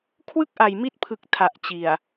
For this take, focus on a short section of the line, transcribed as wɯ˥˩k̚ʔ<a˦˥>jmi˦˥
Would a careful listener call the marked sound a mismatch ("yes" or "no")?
yes